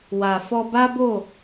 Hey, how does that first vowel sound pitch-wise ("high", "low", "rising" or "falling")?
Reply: low